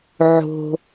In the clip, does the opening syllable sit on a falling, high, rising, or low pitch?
low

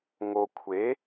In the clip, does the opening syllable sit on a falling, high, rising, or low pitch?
low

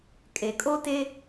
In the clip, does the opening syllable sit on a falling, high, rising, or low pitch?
low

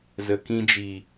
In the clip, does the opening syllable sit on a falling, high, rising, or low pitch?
low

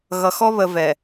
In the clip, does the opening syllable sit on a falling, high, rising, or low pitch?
low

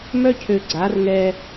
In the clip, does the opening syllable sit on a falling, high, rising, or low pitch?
high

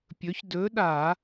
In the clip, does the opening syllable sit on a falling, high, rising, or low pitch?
rising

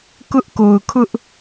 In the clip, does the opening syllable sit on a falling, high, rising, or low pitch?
high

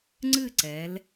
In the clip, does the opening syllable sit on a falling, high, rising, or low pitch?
falling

